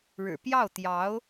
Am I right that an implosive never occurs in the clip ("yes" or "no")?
yes